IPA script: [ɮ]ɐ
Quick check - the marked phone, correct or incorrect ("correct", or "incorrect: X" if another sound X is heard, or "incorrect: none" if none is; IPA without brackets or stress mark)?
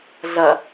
correct